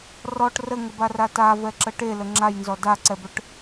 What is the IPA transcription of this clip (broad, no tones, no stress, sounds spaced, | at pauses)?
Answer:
r ɔ ʈ r ə ŋ ə b a r a t a v ɛ ǁ ə ʈ e l ə ŋ͡ǁ a j n z ɔ d a ǀ ɛ b œ ʈ